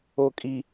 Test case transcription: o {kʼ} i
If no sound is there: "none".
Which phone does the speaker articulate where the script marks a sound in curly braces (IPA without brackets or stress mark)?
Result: kʼ